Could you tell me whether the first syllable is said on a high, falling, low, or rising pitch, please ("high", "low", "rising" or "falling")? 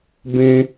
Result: high